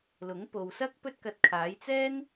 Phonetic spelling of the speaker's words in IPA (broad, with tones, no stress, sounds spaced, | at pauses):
l ʊ˨˥ ŋ p o˨ w s ɐ˥ k̚ p ɵ˥ t̚ k ɐ˧ t̚ kʰ aː˨˥ j t͡s ɛː˥ n